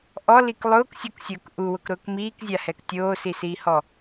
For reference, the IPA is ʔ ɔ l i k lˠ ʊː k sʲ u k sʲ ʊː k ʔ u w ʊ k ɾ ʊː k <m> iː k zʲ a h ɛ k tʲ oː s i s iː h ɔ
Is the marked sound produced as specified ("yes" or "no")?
yes